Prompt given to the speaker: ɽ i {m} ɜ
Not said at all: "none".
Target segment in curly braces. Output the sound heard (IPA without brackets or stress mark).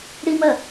m